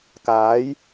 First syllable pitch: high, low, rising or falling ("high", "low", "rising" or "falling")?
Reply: rising